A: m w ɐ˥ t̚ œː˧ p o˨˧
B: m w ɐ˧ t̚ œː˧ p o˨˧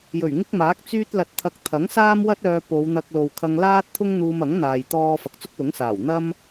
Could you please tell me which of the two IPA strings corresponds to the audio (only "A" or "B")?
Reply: A